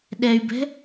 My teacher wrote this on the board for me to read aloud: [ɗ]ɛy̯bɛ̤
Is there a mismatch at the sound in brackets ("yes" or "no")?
no